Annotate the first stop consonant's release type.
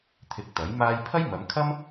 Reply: aspirated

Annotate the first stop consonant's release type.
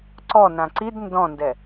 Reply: click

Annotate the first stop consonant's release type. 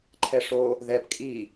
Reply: click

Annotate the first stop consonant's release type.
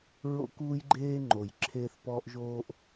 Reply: plain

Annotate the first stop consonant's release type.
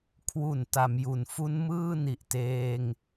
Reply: aspirated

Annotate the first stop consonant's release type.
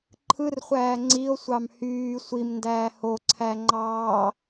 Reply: click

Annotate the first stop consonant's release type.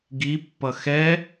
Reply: plain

